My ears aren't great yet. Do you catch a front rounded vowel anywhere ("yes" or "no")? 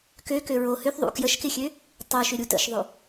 yes